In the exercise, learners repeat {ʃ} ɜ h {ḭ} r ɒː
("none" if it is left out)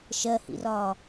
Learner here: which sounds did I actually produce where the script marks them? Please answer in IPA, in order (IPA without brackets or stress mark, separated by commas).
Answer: ʃ, ḭ